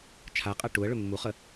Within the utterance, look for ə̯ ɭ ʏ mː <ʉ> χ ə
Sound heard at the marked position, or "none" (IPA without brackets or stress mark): u